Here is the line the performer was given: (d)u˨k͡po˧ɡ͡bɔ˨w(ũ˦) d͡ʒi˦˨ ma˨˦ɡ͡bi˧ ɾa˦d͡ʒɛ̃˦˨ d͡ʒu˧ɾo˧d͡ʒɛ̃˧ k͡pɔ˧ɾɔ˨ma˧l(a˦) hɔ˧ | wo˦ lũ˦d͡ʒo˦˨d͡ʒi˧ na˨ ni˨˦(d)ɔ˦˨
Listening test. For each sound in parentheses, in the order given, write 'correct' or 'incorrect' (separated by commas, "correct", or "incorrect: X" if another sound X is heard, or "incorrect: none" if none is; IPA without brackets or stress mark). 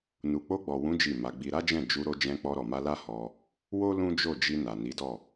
incorrect: n, incorrect: ũ˨˦, correct, correct